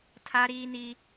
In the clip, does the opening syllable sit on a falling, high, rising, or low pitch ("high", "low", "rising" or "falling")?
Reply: high